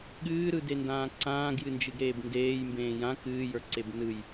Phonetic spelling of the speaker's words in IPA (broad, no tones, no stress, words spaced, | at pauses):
ɠɨːɾɯdendãː ǀãːɡjɨnd͡ʒɨɡɾeːb ndeːjmbẽː jã kɨːjə˞ǀeb nɯj